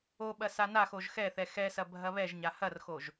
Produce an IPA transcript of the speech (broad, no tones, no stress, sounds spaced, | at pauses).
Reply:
o ɓ ɐ s a n a x o ʒ x ɛ θ ɛ x ɛ s ɐ bʱ ɐ β ɛ ʒ ɲ a h ɐ r x o ʒ